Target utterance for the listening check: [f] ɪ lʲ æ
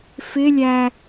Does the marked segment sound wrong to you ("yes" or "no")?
no